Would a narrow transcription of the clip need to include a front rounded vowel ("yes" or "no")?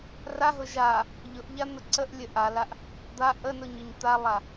no